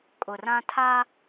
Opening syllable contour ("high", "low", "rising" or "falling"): low